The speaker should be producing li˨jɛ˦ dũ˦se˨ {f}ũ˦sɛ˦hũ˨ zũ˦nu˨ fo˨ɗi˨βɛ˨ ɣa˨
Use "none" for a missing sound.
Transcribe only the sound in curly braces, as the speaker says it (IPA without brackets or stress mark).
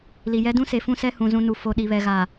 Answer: f